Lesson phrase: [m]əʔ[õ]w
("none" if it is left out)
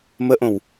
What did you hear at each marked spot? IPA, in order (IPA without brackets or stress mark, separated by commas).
m, õ